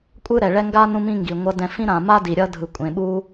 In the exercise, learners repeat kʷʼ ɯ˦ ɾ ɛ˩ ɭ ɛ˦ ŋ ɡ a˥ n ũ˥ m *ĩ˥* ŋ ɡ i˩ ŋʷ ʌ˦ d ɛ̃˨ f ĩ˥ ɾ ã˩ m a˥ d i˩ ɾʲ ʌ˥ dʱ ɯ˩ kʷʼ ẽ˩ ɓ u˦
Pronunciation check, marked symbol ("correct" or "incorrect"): correct